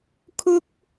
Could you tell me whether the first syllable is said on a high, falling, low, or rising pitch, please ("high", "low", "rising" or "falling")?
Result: high